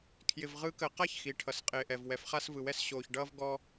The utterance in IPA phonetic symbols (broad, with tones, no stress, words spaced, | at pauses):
kʰjɪ˨v ʁɯ˨˦kəː˨qa˦˨ç xi˨ ʈʰʌ˨sqʼɪː˨ʔɛ˨v wɛ˨fχa˧svɯ˨wɛ˧s ɕoː˨çɖʌː˧vɡɔ˧